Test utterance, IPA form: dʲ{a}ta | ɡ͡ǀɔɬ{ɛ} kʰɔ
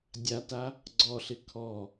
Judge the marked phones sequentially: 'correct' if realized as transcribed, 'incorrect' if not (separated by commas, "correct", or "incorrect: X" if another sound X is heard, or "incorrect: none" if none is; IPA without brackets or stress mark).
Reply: correct, incorrect: ɪ